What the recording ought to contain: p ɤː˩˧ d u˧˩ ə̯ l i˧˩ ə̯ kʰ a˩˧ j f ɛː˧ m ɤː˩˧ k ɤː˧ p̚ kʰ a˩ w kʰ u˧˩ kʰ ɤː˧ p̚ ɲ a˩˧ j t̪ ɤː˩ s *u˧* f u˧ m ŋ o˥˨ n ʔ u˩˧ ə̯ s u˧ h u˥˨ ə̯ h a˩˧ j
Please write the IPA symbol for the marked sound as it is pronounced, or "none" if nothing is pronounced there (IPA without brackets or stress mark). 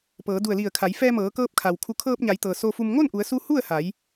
o˧